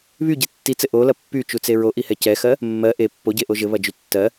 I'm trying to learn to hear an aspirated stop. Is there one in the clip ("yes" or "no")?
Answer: no